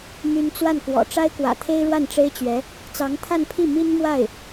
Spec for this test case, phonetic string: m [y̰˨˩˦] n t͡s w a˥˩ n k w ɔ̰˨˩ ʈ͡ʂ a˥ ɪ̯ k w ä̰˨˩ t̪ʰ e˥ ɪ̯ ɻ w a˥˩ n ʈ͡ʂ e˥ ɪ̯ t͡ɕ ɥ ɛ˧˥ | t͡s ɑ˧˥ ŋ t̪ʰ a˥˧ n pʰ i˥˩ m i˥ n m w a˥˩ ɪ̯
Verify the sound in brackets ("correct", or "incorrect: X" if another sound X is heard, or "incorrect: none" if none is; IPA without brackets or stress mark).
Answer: incorrect: y˥